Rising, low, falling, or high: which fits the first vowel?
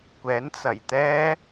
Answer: rising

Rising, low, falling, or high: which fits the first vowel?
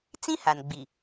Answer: high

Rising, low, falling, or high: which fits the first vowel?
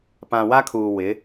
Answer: low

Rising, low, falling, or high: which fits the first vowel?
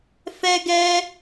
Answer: high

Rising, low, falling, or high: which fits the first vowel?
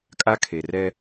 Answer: high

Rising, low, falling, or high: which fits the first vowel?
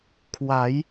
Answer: rising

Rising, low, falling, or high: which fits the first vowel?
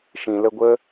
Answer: low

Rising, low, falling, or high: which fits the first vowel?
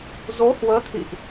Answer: rising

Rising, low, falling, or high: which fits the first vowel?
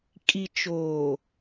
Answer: low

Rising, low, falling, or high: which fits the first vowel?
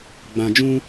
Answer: low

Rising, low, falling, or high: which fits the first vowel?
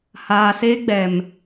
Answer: low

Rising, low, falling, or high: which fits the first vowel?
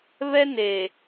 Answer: high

